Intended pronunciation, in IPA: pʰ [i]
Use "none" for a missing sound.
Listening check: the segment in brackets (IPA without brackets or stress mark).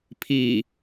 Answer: iː